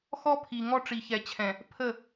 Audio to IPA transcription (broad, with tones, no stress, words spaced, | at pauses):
xɔ˦pʰi˨ ŋɔ˦ʈ͡ʂi˨çɛ˨t͡ɕʰɛ̃˨ | pʰə˦˨